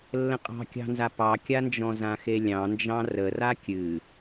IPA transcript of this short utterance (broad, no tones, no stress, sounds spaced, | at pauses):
lː ə̃ qʼ ɑ̤ kʲ ɑ̤ n z a p ɑ kʲ a n d͡ʒ ɔ̃ z ã x e lʲ ɑ̃ n d͡ʒ ɑ̃ r ə r a kʲ ɨ